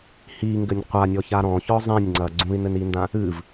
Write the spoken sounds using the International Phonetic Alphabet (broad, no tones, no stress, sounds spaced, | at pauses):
h i ŋ ɡ ɘ nʲ qʷ a nʲ ɔ ç a ɾ ɔ̃ ç ɔ zˤ ĩ nʲ ŋ͡ǀ ɐ ɡ͡ǀ ũ i̯ n ɘ n i n d ã | ɨ v